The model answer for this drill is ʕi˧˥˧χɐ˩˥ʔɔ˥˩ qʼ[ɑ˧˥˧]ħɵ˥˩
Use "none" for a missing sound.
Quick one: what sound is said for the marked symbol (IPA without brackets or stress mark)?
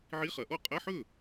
ɐ˧˥˧